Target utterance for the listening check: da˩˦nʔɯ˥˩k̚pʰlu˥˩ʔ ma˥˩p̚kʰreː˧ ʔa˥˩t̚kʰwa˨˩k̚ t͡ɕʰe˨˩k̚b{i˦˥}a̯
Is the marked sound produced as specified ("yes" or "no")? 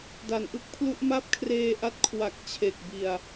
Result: no